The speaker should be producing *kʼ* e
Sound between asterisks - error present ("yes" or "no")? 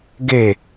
yes